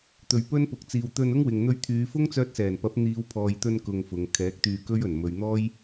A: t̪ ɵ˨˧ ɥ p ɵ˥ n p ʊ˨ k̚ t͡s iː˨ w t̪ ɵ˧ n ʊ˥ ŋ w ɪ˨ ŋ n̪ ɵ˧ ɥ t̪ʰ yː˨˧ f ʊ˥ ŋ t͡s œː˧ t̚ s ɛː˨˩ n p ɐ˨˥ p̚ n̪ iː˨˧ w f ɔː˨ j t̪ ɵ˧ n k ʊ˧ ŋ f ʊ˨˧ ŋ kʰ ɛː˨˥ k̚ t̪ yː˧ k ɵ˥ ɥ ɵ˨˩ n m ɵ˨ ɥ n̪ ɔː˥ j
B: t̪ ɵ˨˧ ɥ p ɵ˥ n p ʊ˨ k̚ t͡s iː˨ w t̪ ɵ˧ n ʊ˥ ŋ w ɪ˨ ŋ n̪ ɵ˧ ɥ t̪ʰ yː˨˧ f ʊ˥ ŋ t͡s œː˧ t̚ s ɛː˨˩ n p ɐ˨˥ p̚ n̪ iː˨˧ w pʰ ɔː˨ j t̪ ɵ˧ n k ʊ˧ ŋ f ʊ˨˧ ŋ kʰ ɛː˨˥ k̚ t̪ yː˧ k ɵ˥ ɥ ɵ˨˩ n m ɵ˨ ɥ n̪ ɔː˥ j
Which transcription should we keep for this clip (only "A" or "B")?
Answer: B